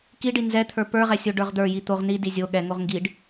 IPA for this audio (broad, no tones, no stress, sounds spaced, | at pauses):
k i ɖ i n z ɛ t̪ʰ ə˞ p ə˞ ʁ ɛ sʲ o ɖ ə˞ ʁ d̪ ə˞ j i t̪ o ʁ n i d i zʲ o ɠ ɛ ŋ o ʁ ŋ ɡ i ɖ